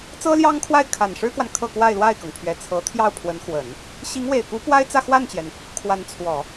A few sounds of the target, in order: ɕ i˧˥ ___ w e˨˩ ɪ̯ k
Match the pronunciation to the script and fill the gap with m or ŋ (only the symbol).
ŋ